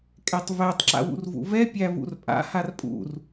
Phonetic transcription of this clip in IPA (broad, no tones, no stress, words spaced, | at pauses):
kʼɛtˤvætˤ ǁa̰wṵrvṵvɛ pʲævṵrpʼa̰ harpʼṵr